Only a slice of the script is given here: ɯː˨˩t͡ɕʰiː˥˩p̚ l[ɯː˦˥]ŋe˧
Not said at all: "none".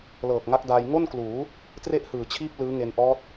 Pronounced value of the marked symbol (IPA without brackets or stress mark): ɯː˦˥